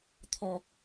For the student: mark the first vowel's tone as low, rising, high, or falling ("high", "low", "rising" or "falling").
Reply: high